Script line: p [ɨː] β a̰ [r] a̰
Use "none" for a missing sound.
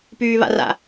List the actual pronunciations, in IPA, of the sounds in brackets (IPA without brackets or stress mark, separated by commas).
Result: yː, r